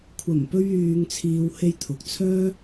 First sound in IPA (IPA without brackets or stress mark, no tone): kʷʰ